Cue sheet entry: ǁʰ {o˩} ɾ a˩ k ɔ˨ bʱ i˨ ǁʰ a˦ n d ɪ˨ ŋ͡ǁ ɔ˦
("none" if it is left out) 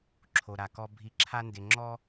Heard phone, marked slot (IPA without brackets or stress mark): o˩